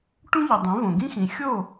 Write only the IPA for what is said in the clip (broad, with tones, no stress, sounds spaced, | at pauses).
ʈ ũ˥ ʎ i˩ dˤ ẽ˩˥ v õ˩ ɡ ĩ˥ x ĩ˩ xʲ o˥˩